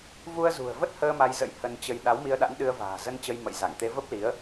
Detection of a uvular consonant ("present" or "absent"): absent